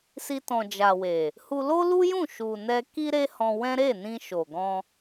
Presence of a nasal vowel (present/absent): present